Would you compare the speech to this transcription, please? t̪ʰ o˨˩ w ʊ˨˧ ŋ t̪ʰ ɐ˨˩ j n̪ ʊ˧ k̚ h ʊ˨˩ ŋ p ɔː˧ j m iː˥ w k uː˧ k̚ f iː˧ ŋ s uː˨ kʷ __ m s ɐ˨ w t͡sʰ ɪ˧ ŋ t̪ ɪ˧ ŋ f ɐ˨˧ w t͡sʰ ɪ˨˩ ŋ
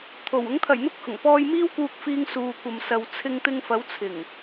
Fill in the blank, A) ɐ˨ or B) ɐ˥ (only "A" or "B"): A